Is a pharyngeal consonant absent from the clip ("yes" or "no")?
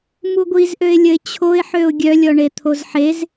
no